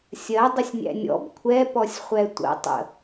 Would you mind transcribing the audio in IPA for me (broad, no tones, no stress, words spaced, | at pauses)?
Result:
sʲɜdˤəsʲnʲæ̰ nʲɔ̰b kʷʰɛpɔsʲχʷɛ tʷə̰ tˤə̰